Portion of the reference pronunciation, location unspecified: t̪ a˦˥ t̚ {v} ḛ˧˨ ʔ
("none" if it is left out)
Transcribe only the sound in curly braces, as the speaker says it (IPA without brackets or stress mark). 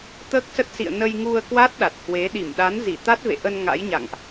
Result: v